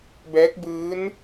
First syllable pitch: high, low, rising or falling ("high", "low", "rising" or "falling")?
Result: rising